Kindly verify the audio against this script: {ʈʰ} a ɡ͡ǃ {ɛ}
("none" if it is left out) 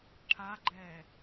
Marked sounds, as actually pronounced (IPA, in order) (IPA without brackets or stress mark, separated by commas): ʈʰ, ɛː